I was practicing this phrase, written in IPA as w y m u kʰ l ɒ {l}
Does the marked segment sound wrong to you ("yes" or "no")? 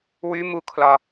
yes